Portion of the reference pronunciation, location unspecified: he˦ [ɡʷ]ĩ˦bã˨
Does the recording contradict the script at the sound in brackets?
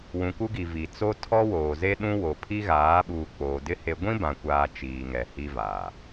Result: no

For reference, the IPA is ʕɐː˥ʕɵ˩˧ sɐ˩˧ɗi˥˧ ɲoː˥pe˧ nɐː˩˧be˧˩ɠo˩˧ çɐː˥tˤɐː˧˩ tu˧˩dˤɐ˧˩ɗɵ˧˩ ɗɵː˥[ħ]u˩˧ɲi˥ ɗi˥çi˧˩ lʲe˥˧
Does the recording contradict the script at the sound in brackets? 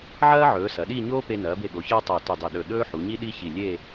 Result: no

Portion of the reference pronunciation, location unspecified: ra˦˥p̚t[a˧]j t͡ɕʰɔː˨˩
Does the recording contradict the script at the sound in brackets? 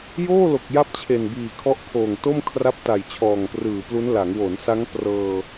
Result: yes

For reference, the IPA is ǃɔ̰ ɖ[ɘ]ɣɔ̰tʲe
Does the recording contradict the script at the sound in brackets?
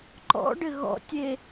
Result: no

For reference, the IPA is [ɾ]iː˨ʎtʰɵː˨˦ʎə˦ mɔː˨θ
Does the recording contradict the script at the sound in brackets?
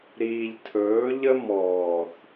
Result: no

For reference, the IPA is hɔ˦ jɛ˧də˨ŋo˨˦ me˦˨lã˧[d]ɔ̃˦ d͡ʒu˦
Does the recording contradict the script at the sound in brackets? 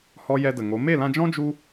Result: yes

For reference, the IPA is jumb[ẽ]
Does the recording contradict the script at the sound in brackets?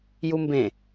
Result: no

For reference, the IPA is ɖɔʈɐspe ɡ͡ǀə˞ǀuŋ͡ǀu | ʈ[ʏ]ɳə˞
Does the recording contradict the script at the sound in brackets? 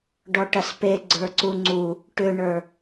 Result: no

